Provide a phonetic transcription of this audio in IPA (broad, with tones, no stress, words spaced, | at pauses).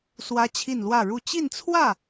swä˥t͡ɕʰi˥˧nlwä˥˧ɻu˥˧ t͡ɕi˥˧nt͡sʰwä˥˩